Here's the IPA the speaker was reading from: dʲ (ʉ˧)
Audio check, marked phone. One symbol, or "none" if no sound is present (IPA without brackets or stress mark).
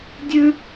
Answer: ʉ˧